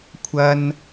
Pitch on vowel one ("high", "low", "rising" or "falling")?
high